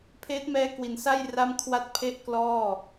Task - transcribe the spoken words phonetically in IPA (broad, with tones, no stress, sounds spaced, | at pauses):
pʰ eː˦˥ t̚ m ɛː˦˥ k w i˨˩ n s a˥˩ j r a˥˩ m kʰ w a˥˩ t̚ pʰ e˥˩ ʔ k l ɔː˥˩